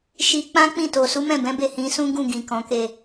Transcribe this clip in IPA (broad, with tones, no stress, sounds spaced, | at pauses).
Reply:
ʃ i˧ k͡p ã˦ k͡p ĩ˦˨ t o˨ s u˨˦ m ɛ̃˦˨ b ɛ̃˨˦ b e˦˨ h ĩ˨˦ s ũ˦ ɡ ũ˦˨ ɡ ĩ˨ k ɔ̃˨˦ k e˦˨